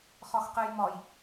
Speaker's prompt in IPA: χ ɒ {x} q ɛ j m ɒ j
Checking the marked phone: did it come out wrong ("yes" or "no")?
no